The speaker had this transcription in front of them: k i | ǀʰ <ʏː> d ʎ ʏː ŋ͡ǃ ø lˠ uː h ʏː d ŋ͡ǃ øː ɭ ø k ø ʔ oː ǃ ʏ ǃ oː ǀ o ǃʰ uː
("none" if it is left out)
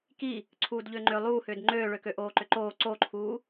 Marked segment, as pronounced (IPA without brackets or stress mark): uː